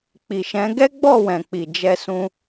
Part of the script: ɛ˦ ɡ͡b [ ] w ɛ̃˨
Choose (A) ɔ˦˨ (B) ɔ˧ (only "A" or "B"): A